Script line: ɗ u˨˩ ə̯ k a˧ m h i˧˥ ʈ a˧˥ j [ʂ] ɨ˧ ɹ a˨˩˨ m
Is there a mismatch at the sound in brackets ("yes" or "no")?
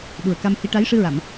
no